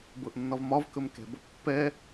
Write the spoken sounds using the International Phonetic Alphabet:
bɤʔnːɒvmɒv kɵmkɛ̤ bɔpːɛ

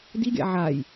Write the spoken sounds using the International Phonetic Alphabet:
diɡʲa̰ ʕaj

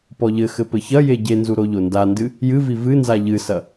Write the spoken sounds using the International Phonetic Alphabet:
pɔʎɘxɘ pɘçɐje ɟenzu ɾoʎondandɨ | jɨvi vɨnza ʎɨsɐ

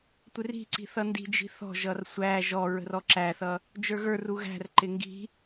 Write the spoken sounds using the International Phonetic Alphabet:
tʷɪri̤ǀi̤ θʌndi̤d͡ʒi̤ θɔ̤ʒʌr sʷæ ʒɔ ɹə̤rɔǁæθʌ | d͡ʒə˞ɣə˞ru ɣæ̤rǃɪ ŋɡi̤

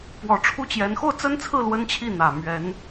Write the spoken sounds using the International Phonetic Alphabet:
pwɔ˨˩ʈ͡ʂʰu˥˩t͡ɕjɛ˧˥n xo˥˩ʊ̯t͡sə˥nt͡sʰɹ̩˥˩ lwə˥nt͡ɕʰi˥˩ n̪ä˨˩ mɥɛ˧˥n

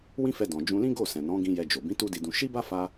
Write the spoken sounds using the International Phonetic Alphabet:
wĩ˦fɛ˧ dɔ̃˨ d͡ʒũ˧lĩ˦ɡo˦˨sɛ̃˨ nɔ̃˨˦ɡĩ˧ jɛ˧d͡ʒo˨ bĩ˨˦ tu˦di˧dũ˧ ʃi˦ba˦fa˧

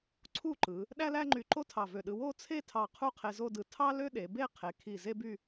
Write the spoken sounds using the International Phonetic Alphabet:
ǀʰu˥˧ǃɯ˩˧ | ɗæ˥læ˥ŋ͡ǃy˧ǃo˥ tʰɑ˧˩vø˧˩ɗɯ˧ wo˥˧t͡sʰe˥˧tʰɑ˧˩ qʰu˥qʰe˧zo˥˧dɯ˧ tʰɑ˥lø˥ɗe˩˧be˥˧ qʰe˩˧kʰi˧˩ ze˥by˥˧

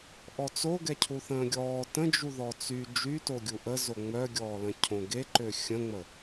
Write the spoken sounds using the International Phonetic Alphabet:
ʔɔt͡soɡɛ cʰuθə̃ːɡʲɔː tə̃d͡ʒuðɔ t͡sy d͡ʒyto ɡʲuʔəzo ŋ͡mœɡʲɔːlə̃ cʰõɡeǃø xʲə̃ŋ͡mə

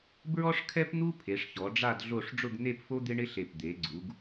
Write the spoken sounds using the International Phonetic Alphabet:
bɹɔ˥ʂkʰɛ˥pn̪u˥ pʰe˩˧ʂçɔ˩˧ɖ͡ʐa˥˧d ɮo˥˧ʂ ɖ͡ʐʊ˥˧ɡn̪e˥˧pfo˥ d̪ɪ˥ɳɪ˥ ɬe˧˩p d̪e˩˧ɡ͡ǀu˩˧ɡ

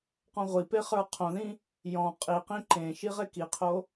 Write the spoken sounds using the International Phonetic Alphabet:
qɔ̃ʁʷipe χə˞qʰõðĩ | jɔ̃ qʼiqĩ ǃẽʃi ʁekiqʰo

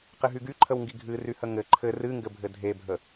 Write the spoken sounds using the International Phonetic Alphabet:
qɪɦyɡy ǃʰəwŋɡiɡʱɨ ryhəŋɘ ǃʰɘ rɨŋɡɘbʱɘ dʱebʱə

